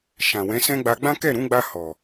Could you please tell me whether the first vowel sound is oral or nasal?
nasal